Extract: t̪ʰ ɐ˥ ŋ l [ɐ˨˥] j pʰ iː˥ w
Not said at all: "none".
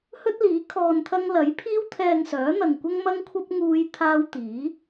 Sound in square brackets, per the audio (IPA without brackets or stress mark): ɐ˨˥